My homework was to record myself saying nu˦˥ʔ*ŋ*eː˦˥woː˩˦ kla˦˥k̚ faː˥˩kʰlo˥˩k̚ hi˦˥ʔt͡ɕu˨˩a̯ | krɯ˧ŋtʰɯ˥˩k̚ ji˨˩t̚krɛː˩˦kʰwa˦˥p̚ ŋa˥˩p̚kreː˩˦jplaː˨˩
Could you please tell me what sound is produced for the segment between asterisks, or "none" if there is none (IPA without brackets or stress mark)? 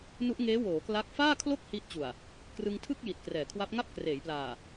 ŋ